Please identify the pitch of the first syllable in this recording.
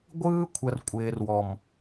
high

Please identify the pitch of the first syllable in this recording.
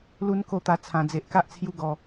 high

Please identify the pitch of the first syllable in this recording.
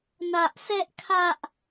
high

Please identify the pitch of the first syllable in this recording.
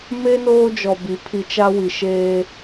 high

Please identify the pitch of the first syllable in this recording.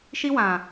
high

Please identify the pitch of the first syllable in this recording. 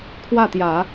falling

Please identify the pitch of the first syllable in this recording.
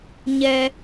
low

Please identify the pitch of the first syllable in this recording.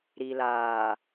low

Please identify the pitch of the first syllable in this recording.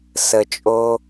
low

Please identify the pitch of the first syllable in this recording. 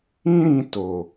high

